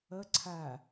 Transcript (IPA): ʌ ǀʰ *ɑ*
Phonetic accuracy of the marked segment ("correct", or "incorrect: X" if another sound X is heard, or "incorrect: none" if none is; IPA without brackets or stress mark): incorrect: a